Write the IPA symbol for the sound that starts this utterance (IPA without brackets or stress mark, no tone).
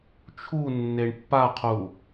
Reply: t͡ʃʰ